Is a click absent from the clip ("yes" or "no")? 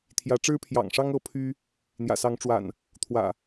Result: yes